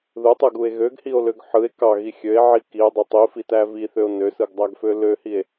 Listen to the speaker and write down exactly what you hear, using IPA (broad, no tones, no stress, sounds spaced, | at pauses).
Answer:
ð ɯ tˤ ɯ ɡ u e̯ ɣ ø ɡ h i o̯ l ø ɡ ħ ɯ e̯ k ɑ ɣ i xʲ ø e̯ ʕ i k i e̯ dˤ ø tˤ i f i t æ v i θ ø o̯ n ø s ɯ ɡ dˤ æ ɡ f ø l ø h i e̯